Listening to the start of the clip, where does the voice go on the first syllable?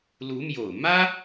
rising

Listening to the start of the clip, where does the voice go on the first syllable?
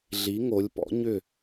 rising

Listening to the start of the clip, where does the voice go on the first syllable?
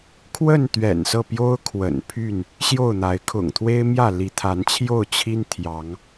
falling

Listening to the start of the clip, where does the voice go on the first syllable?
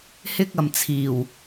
high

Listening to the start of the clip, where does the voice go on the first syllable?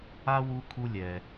high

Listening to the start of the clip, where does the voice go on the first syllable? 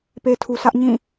low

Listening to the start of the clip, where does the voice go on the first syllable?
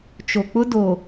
low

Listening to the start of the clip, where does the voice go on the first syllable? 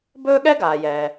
high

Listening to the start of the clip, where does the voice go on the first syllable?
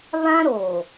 high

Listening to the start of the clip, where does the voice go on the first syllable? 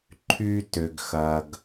high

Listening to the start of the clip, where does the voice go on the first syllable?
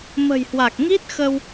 low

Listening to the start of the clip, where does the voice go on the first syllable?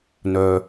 low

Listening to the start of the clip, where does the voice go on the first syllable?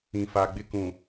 low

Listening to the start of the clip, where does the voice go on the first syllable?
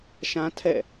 high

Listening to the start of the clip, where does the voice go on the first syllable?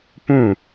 falling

